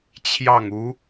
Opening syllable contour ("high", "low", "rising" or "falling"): falling